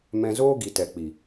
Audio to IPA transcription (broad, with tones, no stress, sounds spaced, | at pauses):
m ɛ̃˧ z oː˦ ɡ i˨ t ɛ˨ k͡p i˨